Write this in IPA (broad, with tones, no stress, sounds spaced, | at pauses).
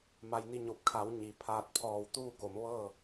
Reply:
m a˧ j n i˥˨ ɲ o˧˩ p̚ kʰ a˩˧ w ɲ i˩ pʰ aː˧ t̚ pʰ ɔː˧˩ w t̪ uː˥˨ k o˩˧ m ʋ ɤː˥˨